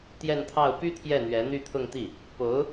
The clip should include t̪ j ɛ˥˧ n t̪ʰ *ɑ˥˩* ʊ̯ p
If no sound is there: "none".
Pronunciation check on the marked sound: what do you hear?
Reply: ɑ˥˩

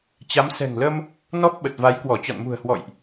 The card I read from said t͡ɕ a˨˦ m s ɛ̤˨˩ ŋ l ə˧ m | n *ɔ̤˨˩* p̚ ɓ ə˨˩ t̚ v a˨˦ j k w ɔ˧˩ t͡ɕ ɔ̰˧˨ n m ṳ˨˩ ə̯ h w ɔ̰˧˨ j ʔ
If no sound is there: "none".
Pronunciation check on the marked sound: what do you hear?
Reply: ɔ˦˥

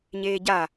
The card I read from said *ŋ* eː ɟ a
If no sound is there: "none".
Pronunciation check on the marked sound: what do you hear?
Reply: ɲ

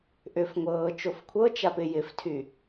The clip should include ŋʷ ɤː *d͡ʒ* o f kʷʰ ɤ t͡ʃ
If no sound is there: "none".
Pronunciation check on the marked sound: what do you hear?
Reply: t͡ʃ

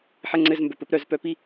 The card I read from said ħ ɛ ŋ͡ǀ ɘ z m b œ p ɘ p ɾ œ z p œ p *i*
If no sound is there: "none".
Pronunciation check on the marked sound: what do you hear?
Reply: i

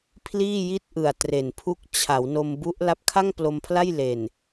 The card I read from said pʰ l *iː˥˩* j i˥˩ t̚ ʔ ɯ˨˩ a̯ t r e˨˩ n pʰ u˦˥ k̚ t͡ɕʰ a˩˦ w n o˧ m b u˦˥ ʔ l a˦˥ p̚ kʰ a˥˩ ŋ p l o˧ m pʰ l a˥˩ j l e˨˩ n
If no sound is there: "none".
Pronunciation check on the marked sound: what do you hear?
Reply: iː˥˩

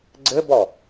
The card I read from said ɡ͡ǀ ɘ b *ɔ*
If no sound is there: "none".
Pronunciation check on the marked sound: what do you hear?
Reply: ɔ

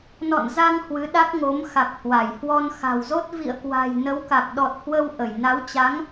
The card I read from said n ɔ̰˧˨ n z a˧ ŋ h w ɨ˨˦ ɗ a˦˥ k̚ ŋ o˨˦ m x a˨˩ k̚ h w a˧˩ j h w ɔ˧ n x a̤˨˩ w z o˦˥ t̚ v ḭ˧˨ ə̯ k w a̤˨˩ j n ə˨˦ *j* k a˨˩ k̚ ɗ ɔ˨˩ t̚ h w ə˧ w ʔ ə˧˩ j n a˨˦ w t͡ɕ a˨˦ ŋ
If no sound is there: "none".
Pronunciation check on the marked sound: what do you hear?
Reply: w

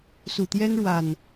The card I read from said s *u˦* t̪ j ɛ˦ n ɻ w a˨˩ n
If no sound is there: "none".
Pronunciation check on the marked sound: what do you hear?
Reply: u˨˩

